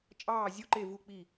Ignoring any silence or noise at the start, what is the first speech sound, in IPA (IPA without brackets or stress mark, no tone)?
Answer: t͡ʃʼ